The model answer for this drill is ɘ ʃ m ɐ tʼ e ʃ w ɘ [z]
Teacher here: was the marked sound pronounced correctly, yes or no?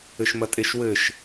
no